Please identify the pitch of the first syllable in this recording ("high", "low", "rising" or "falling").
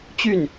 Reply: falling